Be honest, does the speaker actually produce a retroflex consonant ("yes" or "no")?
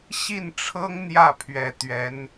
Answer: yes